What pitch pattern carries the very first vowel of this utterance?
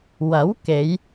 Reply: rising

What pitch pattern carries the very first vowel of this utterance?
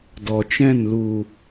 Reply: low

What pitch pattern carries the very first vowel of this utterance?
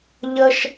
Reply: high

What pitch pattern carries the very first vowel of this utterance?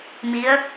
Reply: rising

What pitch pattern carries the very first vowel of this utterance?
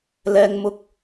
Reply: high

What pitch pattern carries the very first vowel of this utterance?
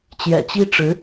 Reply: low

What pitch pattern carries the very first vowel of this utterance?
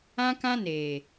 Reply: high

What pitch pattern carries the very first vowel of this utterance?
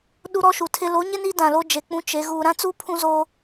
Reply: high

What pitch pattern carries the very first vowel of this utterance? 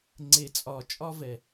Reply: low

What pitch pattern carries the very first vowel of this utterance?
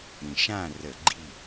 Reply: low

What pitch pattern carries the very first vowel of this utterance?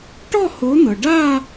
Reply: falling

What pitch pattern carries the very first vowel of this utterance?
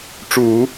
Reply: low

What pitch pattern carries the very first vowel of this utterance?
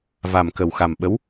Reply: low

